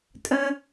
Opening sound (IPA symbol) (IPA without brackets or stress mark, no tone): tʼ